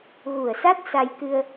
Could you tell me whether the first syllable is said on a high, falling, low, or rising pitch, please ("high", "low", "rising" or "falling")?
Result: low